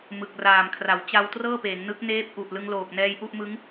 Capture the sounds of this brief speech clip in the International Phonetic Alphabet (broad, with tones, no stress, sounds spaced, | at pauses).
m ɯ˨˩ k̚ r aː˨˩ m kʰ r a˩˦ w t͡ɕ a˧ w t r ɤː˥˩ p eː˩˦ ŋ n ɯ˦˥ k̚ n eː˦˥ p̚ ʔ u˨˩ ʔ l ɯ˧ ŋ l oː˨˩ k̚ n ɛː˧ j ʔ u˥˩ ʔ m ɯ˦˥ ŋ